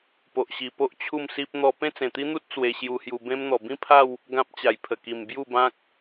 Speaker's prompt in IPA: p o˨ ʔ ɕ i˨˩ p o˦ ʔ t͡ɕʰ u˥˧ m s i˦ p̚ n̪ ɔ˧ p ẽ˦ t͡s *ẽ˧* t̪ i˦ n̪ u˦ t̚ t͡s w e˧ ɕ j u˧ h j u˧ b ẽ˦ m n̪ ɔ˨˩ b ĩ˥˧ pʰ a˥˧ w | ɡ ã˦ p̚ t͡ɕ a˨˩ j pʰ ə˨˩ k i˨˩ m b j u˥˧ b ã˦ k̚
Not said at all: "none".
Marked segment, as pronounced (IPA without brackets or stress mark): ẽ˨˩